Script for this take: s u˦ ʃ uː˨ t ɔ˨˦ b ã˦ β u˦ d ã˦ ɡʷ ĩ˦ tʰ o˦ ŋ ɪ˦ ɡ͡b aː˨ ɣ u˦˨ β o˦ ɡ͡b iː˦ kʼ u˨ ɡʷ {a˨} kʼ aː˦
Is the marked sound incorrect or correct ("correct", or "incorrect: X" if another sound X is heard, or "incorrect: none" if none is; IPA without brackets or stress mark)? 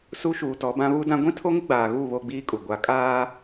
correct